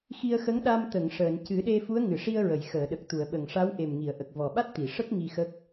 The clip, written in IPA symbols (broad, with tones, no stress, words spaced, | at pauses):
xi˧ə̯xə˧˥ŋɗa˧m t̪ə˨˩˨ŋ ʂəː˨˩˨n cɨ˨˩˦ɗe˧ fu˧˥ə̯ŋɨ˨˩˨ʂi˧ə̯ɹə˨˩˨j xəː˨˩˨ɗə˨˩k̚t̪u˨˩˨ə̯ɓə˨˩ŋ ʂa˧˥wʔe˨˩m ŋi˨˩˨ə̯ʔə˨˩k̚ vɔ˨˩ɓa˦˥t̚t̪i˨˩˨ʂə˦˥k̚ ŋi˧xə˦˥k̚